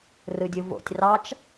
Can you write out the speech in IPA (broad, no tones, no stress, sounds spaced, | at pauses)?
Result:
r ɯ dʲ ɯ v o̰ tʲ r ɑ t͡ʃ